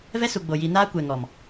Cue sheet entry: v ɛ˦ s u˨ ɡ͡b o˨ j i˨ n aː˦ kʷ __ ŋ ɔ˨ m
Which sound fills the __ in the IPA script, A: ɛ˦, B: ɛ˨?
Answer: B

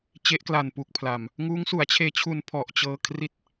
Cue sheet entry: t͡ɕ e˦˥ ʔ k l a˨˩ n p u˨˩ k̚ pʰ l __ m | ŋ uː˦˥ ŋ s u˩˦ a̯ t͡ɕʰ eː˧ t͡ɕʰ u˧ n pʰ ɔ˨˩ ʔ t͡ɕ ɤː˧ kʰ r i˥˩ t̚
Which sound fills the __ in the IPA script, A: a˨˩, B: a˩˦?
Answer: A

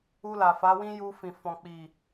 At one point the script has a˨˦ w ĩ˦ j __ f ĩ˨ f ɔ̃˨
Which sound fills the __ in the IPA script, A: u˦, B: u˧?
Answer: B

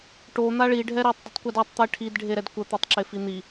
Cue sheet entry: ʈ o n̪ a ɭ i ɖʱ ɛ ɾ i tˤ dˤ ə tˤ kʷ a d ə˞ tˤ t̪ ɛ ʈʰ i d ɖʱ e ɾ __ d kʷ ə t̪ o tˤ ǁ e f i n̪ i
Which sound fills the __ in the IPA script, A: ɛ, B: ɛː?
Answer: A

